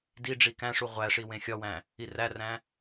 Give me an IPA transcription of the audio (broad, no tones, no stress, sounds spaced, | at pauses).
d i ɖ͡ʐ i k æ̃ ʂ u ʁʷ æ ʂ i w ẽ xʲ ɒ w æ̃ | i r æ r æ̃